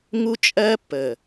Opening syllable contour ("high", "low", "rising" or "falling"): high